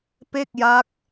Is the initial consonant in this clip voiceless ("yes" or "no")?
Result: yes